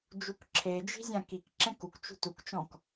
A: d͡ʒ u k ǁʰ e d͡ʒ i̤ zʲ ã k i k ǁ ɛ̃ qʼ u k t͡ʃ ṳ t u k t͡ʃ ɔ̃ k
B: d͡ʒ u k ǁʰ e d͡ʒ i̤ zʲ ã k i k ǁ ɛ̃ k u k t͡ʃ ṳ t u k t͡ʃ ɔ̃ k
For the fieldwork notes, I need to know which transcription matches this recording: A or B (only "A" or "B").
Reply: B